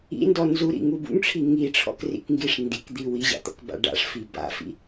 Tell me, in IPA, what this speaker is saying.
ḭ n d ɔ n z u ɾ ḭ ŋ u b ṵ ŋ ʈ͡ʂʰ i ŋ i ʈ͡ʂʰ ɔ̰ k r ḭ k ŋ ɡ i ʂ n d i k d̪ i w i ʑ a̰ t̪ ɔ̰ k b a̰ ɖ a̰ ʂ f i b a̰ f ḭ

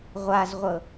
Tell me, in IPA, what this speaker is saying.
ʁʷ a z ʁʷ ɤ

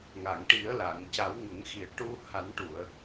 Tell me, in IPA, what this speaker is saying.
ŋ a˨˩˨ ŋ ʈ i˨˩˦ ə̯ l a˨˩˨ ŋ c a˨˩˦ w ŋ ə˨˩˦ ŋ x i˨˩ ə̯ ʈ u˧ h a˨˩˦ n ʈ u˨˩˨ ə̯

